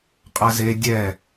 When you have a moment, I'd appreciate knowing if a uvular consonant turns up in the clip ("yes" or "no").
yes